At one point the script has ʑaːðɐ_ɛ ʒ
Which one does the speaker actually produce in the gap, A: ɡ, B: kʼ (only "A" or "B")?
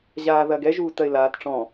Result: A